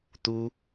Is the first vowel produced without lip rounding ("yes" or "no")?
no